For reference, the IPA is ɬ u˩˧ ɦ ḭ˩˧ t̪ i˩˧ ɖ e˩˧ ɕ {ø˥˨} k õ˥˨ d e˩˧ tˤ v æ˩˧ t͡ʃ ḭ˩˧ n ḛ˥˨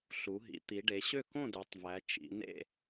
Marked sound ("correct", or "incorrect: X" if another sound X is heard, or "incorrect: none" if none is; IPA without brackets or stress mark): correct